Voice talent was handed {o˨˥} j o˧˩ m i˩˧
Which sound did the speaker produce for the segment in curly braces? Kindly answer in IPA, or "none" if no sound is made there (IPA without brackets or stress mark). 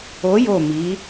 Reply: o˨˥